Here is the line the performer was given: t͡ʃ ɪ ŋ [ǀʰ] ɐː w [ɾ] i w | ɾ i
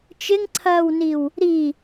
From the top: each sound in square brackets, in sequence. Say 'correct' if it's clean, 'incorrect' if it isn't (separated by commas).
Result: correct, incorrect